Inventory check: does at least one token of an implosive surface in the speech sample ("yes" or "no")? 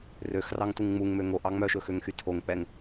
no